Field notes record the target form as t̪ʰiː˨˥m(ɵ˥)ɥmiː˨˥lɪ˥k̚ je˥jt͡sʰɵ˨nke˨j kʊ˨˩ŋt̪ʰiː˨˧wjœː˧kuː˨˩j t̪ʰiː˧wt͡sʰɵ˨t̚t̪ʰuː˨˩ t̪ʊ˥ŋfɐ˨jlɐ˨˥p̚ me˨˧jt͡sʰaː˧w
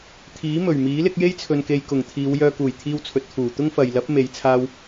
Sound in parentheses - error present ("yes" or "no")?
yes